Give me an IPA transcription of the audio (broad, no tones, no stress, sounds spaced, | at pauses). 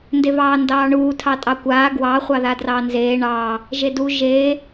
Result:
n d e v ɑː n d ɑː ɳ uː tʰ ɑ tʼ ɑ kʷ aː ɡ w ɑ χʷ ɑ ð a d r ɑː n z eː ɳ ɑː | ʒ e d u ʒ eː